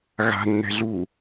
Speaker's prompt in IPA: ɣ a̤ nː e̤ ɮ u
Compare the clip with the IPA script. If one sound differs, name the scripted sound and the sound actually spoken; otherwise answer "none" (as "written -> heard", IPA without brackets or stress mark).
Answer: e̤ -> ɛ̤